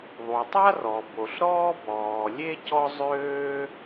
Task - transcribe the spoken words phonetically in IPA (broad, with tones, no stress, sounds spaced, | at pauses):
ðˤ u˩ tˤ a˥ r ɔ˩ b o˩ ɬ ɾ ɔː˥ b ɔː˩ lʲ e˥ c ɔ˥ zˤ øː˥